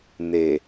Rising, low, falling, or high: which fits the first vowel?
low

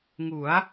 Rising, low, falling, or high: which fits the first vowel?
rising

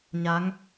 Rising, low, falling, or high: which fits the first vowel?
rising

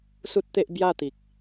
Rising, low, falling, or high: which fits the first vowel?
high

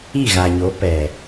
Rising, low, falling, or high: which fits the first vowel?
falling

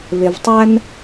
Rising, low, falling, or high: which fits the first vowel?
low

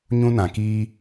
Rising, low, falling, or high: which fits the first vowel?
high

